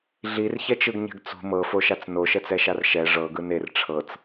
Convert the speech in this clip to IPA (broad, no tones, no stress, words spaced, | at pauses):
ɮirçɛt͡ʃɯɡɲɛ̤ɡ t͡sṳ mɤfoʃat͡s noʃɛt͡sɛʃar ʃɛ ʐɤɡɯ ner ʈ͡ʂʰɤt͡s